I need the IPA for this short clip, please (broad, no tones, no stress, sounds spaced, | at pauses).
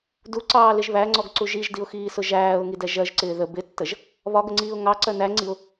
d u ǀ ɑː l ɪ ʒ β æ ŋ͡ǀ ɔ ɡ ǀ u ʒ i ʒ d i ʊ̯ x iː s ʊ ʒ æː ʊ̯ ŋ i d ɛ ʒ ɜ ʒ ǀ ɪː ð ə b ɪ tː ə ʒ | β ɒ ɡ ə ŋ͡ǀ iː ʊ̯ ŋ ɑ ǀ ɜ n æ ŋ͡ǀ i ʊ̯